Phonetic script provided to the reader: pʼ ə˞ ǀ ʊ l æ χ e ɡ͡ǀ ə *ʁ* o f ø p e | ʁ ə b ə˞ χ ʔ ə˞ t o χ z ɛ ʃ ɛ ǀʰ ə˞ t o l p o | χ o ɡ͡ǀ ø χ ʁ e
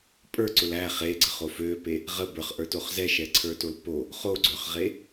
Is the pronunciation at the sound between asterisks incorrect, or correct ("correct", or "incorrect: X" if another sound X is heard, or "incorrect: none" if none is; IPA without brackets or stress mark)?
incorrect: χ